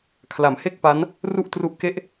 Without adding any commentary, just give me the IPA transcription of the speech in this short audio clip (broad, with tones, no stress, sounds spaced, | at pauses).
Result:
kʰ l a˩˦ m h e˥˩ k̚ p a˦˥ n | r u˥˩ ʔ t r u˦˥ ʔ k e˥˩ ʔ